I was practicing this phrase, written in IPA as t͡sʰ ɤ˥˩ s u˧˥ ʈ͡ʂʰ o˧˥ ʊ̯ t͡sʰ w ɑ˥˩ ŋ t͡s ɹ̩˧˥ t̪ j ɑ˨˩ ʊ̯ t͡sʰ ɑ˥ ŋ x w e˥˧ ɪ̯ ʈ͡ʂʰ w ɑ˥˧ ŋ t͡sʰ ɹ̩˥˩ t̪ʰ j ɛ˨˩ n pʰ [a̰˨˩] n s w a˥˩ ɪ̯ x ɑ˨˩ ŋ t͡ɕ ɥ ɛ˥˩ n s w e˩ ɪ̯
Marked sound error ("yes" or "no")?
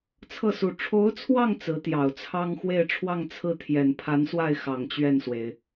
yes